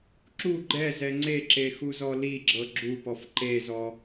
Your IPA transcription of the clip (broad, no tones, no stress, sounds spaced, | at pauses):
ǁ u ɡ͡ǃ ɛ z ɛ ŋ͡ǀ e ǁ e x u z ɔ l i ɡ͡ǁ ɤ ɡ͡ǁ u p ɔ f ǃ e z ɔ